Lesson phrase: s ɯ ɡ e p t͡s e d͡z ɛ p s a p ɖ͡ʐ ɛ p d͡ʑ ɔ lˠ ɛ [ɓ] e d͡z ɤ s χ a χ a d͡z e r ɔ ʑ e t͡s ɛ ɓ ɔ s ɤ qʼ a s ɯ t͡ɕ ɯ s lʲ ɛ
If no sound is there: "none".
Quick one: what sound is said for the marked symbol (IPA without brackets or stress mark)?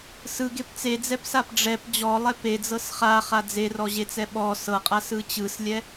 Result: p